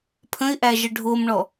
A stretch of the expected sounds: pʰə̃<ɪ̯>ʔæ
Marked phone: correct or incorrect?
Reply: correct